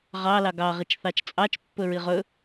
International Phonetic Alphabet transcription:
ʁ ɑ l ɑ ɡ ɑ ʁ i t͡ʃ θ ɑ t͡ʃ t͡sʼ ɑ t͡ʃ pː ɵ ɹ i ʁ ɵ

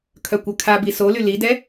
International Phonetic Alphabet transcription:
kʰ œ kʷ œ kʰ a b i s o l y l i d ɛ

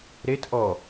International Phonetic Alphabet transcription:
ɾ e t ʔ ɔ

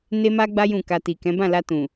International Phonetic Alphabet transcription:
n e˦ m a˦ ɡ͡b a˦ j ũ˦˨ k a˧ t i˨ k ɛ̃˨˦ b ã˦˨ l a˧ t ũ˨

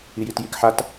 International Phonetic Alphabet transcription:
i j i t j i k ħ a t

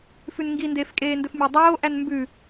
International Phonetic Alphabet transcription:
f ʉ n ŋ ɡ i n d eː f kʼ eː n d ɵ f mʲ æ dˤ oː ʔ æ n m b ʉ

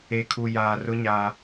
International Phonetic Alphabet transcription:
e˨ kʰ u˨ j aː˨ r ʊ˦ ɲ aː˦

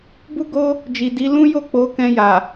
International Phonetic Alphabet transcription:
b u˦ ɡ o˦ | d͡ʒ i˨ d i˨˦ l ũ˦ j o˦˨ k͡p o˨˦ k ɛ̃˧ j a˨

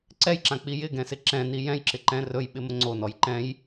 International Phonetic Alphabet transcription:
ǀ ɛ j ǁ ã k͡p i j ɪ ɡ ɛ̃ s ɪ ǁ ɛ̃ n i j ɛ̃ j ǁ ɪ ǃ ɛ̃ r ɵ j ɓ ɪ m ə ŋ͡ǀ o n ɔ j ǃ ɛ̃ j

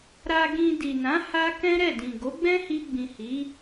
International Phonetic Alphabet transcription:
ɾ a˧ ɡ ĩ˧ d i˨ n ã˨˦ h a˦ k ɛ̃˦ ɾ ɛ˦˨ d ĩ˨ ɡ o˨˦ ɡ͡b ɛ̃˦ h i˧ ɡ͡b ĩ˨ h i˨˦

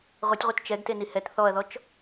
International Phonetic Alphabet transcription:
ʁʷ ɛ tʲ ʁʷ ɨ t t͡ʃ ɛ ɡ t e n i h ɛ t θ ɔ ɐ̯ ð ɔ t͡ʃ

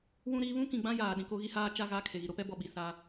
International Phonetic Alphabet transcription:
w ũ˦ ɾ iː˦ β ũ˦ k ĩ˨ ɡ͡b ã˦ j aː˨ ɗ ĩ˨ k o˦ ɣ i˦ h aː˦ t͡ʃ a˦˨ ɣ a˦˨ kʰ e˨ ɣ i˨ ɾ o˦ p ɛ˦ b ɔ˨ ɓ i˨ s a˦

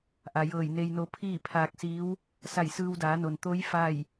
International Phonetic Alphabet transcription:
ʔ a˩ j ɤː˧˩ j n e˧ j n o˧˥ pʰ iː˥˨ pʰ aː˧ k̚ s iː˧˥ w | s a˧˩ j s ɯː˧ w d aː˩˧ n o˩ n t̪ o˧˥ j f a˥˨ j

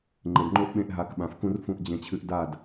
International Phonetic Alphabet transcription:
ŋ͡ǃ e˨ d ŋ͡ǃ o˦ ʔ ɓ ẽ˧ ʔ ɦ a˨˦ k ɓ ã˨ f k ũ˦ r f ũ˧ ʔ d͡ʑ ẽ˧ t͡ɕʰ ɨ˧ ʔ d a˦˨ d

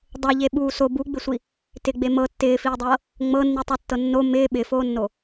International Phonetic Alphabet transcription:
dˤ ɤ ʎ e ɓ uː s o b u ɡ͡b ɪ sʷ i | t ɪ ɡ͡b e m ɤ tː ɪː f iː dˤ ɤː | ŋ͡m ɤ nː i tˤ o tː ɤ nː o m ɪː ɓ ɪ f oː nː o

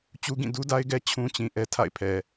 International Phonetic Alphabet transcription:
t͡ɕ u˦ ɡ ĩ˦˨ d u˦ d a˦ ɪ̯ ɡ ɛ˦ t͡ɕʰ ũ˦ t͡ɕ ĩ˨ ʔ ɛ˦ tʰ a̰˦˨ ɪ̯ pʰ ɛ˨

